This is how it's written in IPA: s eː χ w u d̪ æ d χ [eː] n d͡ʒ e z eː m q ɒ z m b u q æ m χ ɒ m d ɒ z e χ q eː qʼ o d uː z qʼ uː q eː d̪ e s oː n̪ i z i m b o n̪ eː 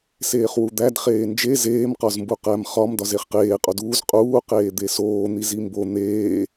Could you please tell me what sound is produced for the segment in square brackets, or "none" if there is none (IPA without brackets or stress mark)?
eː